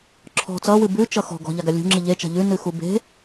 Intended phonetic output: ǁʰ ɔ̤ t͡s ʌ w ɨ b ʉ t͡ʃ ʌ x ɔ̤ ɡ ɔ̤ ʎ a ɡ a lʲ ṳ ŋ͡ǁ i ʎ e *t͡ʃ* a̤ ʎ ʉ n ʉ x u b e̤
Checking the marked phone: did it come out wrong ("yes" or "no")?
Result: no